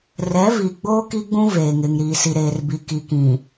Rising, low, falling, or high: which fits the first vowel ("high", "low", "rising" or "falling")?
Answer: rising